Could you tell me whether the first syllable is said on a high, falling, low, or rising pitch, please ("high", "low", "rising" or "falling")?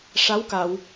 rising